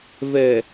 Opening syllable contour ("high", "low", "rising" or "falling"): low